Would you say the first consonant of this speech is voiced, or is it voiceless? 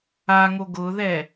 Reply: voiced